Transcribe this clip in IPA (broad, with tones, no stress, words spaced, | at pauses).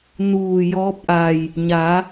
nuː˧˩ jɔː˧˥p̚ʔa˧˩j | ɲa˩˧